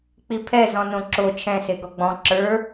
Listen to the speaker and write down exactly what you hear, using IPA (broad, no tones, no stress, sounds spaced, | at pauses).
k͡p i pʰ ɛ z ɔ̃ n õ ǁ o t͡ʃʰ ɛ̃ s e ɡ ɔ ɡ͡b ɔ̃ ǁ ə˞